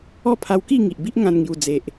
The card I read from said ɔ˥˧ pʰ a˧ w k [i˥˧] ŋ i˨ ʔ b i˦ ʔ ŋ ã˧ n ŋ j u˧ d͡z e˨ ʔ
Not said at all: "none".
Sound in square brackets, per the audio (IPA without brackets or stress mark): i˥˧